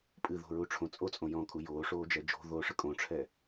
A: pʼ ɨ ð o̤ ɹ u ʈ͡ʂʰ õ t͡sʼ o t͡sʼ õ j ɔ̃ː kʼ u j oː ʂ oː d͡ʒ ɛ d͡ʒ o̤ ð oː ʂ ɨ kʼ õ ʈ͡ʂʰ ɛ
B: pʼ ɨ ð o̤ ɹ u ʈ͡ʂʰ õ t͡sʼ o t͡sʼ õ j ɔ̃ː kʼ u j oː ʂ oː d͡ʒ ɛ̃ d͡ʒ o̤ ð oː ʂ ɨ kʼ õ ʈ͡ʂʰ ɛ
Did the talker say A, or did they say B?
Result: A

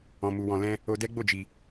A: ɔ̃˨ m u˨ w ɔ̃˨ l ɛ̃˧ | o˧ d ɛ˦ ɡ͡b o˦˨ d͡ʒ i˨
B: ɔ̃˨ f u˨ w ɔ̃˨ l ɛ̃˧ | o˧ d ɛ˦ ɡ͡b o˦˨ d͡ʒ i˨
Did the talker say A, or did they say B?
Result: A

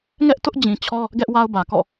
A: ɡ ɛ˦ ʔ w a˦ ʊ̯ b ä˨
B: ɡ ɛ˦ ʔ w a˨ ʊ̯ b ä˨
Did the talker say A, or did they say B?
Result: A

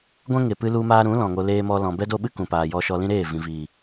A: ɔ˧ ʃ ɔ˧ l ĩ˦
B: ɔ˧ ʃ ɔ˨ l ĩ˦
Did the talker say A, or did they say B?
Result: A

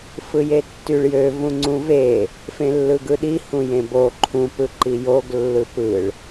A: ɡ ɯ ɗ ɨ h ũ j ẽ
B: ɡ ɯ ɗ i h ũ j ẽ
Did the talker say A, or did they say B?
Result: B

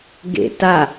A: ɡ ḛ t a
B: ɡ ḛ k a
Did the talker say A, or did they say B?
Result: A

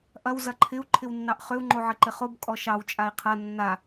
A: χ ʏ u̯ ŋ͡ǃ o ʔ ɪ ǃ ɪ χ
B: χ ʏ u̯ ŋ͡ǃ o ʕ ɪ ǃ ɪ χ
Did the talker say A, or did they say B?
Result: B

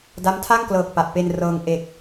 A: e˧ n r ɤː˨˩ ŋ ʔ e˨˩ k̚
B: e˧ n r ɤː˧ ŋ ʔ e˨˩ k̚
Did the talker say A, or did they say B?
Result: B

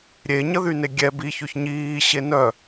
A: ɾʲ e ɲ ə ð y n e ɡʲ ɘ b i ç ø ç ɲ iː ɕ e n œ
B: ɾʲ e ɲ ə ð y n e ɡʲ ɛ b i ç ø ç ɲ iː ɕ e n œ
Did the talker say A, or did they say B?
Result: B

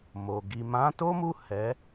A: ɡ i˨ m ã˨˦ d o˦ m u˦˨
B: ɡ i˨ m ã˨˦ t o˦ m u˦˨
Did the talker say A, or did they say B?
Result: B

